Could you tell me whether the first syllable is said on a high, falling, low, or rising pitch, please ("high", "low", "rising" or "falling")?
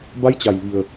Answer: rising